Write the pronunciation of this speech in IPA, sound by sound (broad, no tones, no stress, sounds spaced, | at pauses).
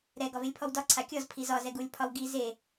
ɾ ɛ ɡ ɒ v e lʲ pʰ ɔ w d ɒ ǀʰ a kʲ ɔ z pʰ i z ɒ z ɛ ɡ u lʲ pʰ ɒ w ɡ i z e